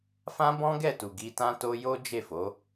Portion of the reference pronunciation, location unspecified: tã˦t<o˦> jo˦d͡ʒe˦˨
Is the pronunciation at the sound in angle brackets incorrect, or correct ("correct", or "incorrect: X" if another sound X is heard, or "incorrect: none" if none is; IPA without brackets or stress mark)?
correct